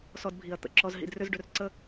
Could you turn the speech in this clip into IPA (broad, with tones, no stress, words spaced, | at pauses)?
sɔ˧dbʱi˩˧ɐ̯ t̪ə̰˩˧ǁɔ˧z ɦḭ˧drʏ˥zɖʏ˧rǀə˥˧